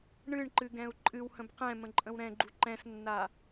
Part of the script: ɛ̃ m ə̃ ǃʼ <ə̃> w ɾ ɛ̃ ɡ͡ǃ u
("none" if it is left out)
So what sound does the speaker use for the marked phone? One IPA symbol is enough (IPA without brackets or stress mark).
ə̃